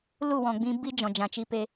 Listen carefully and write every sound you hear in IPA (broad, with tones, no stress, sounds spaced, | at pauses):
l u˦˨ w ɔ̃˨ ɡ͡b ĩ˧ b i˦ d͡ʒ ɔ̃˨ d͡ʒ ã˨ t͡ʃ i˧ p e˧